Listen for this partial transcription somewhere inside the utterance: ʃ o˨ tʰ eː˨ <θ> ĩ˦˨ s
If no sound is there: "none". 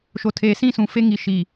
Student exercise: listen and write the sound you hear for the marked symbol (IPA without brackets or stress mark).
s